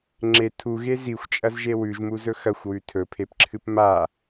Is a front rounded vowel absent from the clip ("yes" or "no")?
yes